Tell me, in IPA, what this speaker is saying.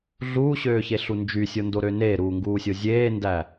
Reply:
ɮ uː ɕ øː ç e ɬ u n d͡ʒ y sʲ o n d o ɾ ø n eː ɾ uː ŋ ɡ uː sʲ o zʲ eː n d æ

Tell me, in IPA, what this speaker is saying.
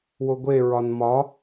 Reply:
w o ɡʷ e ɹ ɒ n m ɒ

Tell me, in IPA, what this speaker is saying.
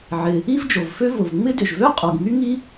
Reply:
ʕ ɪ˩ | i˥ v d͡ʒ o˩ v f ø˥ v ʊ˩ v ŋ͡m ɪ˥ d ʏ˩ ʒ v ø˥ qʼ o˩ ɡ ŋ y˥ ŋ i˥

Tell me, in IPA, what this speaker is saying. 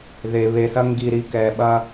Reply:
ð e˨ β e˨ s ɐ˦ ŋ ɡ i˨ ɾ i˨ k ɛ˨ ɓ ɐ˦

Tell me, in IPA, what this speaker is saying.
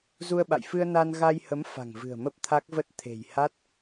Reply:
z u˧ ə̯ ɓ a̰˧˨ j f ɨ˧ ə̯ n a˧ n ɣ a˧ j h ə˨˦ m f a̤˨˩ ŋ v ɨ̤˨˩ ə̯ m ə˦˥ p̚ t̪ʰ a˦˥ k̚ v ə˦˥ t̚ t̪ʰ e̤˨˩ j h a˦˥ t̚

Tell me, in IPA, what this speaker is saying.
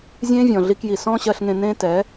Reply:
zʲ ẽː˦ vʲ ɔ̃˨ ɮ i˧ k j i˨ s ɔ̃ː˦ ɕ ɜ˧ ɬ ŋ ẽ˧ n ẽː˦ t ɛ˨˦

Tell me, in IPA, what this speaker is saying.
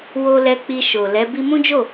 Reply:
w o˧ l ɛ˧ k͡p i˧ ʃ o˨ l ɛ˨˦ b i˧ m ũ˦ d͡ʒ o˦˨

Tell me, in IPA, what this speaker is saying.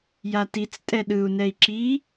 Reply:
j a t i t͡s tʼ ɛ ɗ ɯ u̯ n ɛ i̯ ǁ i

